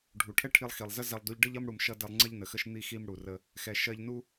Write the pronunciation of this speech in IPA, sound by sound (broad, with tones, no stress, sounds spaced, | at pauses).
ɖʱ u˩ ʈʰ ɛ˥ ʈʰ i˧ lˠ x i˩ lˠ z ə˥ z ɛ˧ lˠ d u˧ ʎ ɖ ə˥ ʎ ʌ˥ m ɽ u˧ m ʃ ʌ˥ d ɛ˧ lˠ ŋ͡ǀ ɜ˥ ʎ n ə˩ x ə˥ ʃ n̪ i˥ x i˥ m ɽ u˩ r ə˧ | x ɛ˩ ʃ ɜ˧ ʎ n u˥